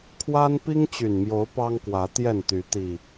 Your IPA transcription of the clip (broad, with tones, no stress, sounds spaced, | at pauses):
kʰ w a˦ n p i˦ ŋ t͡ɕ y˨˩ n m j o˨˦ ʊ̯ p ɑ˦ ŋ k w ä˨˦ t̪ j ɛ˥˨ n t̪ y˨˦ t̪ i˨˩